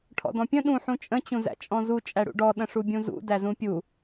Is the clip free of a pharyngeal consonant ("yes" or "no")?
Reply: no